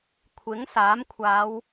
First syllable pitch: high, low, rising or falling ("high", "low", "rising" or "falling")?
rising